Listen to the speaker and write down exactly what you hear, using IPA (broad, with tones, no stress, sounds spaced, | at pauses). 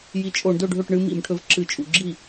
j i˨˦ t͡ʃʼ o˧˩˧ ɳ d ɵ˥˩ ɖʱ ɵ˥˩ ʈ ɳ ɨ˦ m ḭ˧˩˧ m ʈʰ ɵ˨˦ v ǁ ɨ˧˩˧ t͡ʃʼ ṵ˧˩˧ ɡ͡ǁ i˥˩